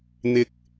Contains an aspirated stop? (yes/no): no